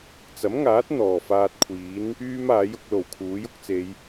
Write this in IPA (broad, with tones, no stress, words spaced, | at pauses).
t͡sɐ˨˥mŋaː˨˥t̚ n̪ɔː˨˩faː˧t̚kʷʰiː˨˥n | yː˥maː˨˥jʊ˧k̚lo˨˩w kʰuː˨˥jʊ˥k̚t͡se˨˧j